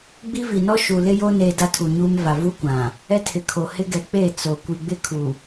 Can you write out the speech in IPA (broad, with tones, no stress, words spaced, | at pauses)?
ɡ͡bi˦vi˨nɔ˦ ʃu˨lɪ˦jo˦ neː˦da˦tʰu˨ɲuː˦m va˨ vu˦kʷã˨ | ɛ˦tʰɪ˨kʰo˨ hɪ˦ɡɛ˨k͡peː˦˨ t͡so˨ kʷi˨ɡ͡bɪ˦kʰu˨